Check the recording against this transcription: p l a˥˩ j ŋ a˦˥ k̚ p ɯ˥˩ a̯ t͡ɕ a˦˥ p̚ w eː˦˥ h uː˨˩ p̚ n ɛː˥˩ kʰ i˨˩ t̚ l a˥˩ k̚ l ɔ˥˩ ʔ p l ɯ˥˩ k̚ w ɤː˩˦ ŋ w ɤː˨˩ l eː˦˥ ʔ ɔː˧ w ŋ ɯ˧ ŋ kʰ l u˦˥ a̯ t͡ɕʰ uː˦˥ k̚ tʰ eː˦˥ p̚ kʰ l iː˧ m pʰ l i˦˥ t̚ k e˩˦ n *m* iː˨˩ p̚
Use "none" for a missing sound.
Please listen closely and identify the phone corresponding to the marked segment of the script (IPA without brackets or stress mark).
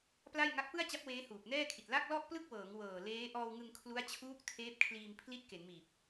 m